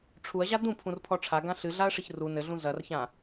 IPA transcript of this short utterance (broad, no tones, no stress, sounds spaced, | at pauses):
ʈ͡ʂʰ u ɐ̯ ʑ a d ũ pʰ ũ r pʰ ɔ ʈ͡ʂʰ a ɡ ã ɬ ɨ ɮ a ɐ̯ ʂ ɨ ç r u n ɘ ɮ ũ z ɐ r ç ã